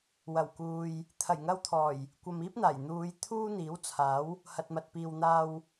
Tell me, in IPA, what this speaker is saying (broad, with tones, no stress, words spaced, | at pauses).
wɐ˨˩wkuː˨j | t̪ʰɐ˨˩jŋɐ˧wt̪ʰɔː˨˩j | kʷɐ˨miː˥p̚n̪aː˨˩j n̪uː˨˧j t̪ʰuː˥n̪iː˨˥wt͡sʰaː˨˥w | hɐ˨t̚mɐ˨t̚piː˨w n̪aː˧w